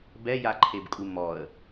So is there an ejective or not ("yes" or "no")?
yes